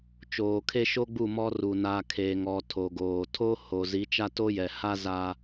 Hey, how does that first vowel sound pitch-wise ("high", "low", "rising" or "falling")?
low